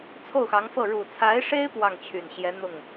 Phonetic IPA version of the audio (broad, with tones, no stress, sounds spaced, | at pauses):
t͡sʰ o˥˩ ʊ̯ x ɑ˧˥ ŋ f ɤ˥˩ ɻ u˨˩ t͡sʰ a˧˥ ɪ̯ ʂ e˥ ɪ̯ p w ɑ˥˩ ŋ t͡ɕʰ y˨˩ n ɕ j ɛ˧˥ n̪ ʊ˥˩ ŋ